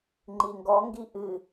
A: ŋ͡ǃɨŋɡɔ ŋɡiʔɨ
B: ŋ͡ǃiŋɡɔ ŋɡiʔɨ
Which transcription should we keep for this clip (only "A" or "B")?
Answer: B